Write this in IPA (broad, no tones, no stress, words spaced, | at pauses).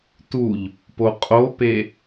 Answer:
tuʎ | poqʼope